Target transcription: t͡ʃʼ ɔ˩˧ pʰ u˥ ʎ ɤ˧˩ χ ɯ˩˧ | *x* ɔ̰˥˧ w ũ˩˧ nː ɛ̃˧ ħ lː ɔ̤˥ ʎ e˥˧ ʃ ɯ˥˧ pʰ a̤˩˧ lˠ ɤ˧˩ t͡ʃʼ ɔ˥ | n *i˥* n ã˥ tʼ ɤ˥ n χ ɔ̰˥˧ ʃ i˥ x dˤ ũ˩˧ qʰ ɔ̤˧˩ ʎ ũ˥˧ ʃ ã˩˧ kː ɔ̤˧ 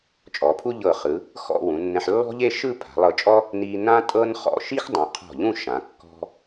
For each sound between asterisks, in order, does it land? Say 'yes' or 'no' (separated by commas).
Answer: yes, no